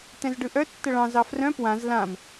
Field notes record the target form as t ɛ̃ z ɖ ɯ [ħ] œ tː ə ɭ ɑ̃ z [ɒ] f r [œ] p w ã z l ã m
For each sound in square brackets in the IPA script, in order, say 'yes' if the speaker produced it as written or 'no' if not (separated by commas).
no, no, no